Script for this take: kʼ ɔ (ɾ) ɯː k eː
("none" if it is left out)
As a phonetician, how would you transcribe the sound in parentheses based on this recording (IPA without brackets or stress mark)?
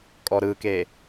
ɾ